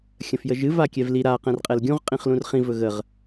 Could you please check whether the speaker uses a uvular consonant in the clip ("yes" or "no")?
yes